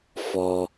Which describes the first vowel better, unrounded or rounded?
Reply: rounded